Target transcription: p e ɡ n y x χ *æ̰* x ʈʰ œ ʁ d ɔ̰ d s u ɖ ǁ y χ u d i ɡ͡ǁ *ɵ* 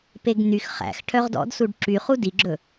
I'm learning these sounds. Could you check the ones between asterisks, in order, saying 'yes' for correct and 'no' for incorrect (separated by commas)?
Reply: yes, yes